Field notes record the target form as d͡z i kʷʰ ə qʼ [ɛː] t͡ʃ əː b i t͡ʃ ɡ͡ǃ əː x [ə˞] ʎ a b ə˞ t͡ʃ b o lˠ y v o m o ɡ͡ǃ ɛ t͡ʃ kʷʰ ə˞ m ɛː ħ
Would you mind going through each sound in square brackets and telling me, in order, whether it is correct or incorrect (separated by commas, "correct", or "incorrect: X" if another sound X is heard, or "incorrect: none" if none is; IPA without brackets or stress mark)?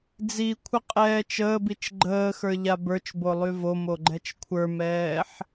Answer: correct, correct